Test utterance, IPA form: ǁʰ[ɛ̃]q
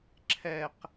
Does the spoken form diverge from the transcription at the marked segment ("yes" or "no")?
yes